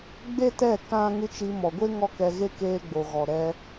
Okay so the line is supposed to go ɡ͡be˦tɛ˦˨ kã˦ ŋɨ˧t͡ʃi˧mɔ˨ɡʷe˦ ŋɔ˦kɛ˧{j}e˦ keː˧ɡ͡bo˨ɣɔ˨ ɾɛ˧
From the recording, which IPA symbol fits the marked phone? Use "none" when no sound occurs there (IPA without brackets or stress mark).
ɣ